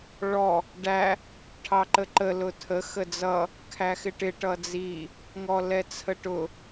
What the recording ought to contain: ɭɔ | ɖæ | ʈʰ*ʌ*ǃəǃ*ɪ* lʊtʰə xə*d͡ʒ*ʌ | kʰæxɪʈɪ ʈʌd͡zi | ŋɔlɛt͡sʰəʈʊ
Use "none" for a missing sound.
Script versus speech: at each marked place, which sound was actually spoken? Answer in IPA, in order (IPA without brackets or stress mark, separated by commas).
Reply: ɑ, ə, d͡z